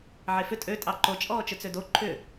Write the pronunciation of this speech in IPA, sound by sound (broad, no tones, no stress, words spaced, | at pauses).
ʕefʏ tʼø tʼɑǃo t͡ʃʼɔːt͡ʃʏt͡sødo ǃʰʏ